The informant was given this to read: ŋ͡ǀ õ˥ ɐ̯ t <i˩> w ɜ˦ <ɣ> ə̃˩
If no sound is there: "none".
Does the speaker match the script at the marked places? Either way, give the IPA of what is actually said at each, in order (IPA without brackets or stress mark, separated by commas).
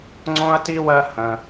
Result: i˥, h